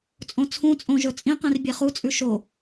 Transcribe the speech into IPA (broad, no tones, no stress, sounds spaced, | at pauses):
t͡sʼ õ t͡sʰ ũ t͡sʼ õ ʒ ɵ t͡sʼ ĩ q ĩ r bʲ e χ u t͡sʼ ʉ ʃ o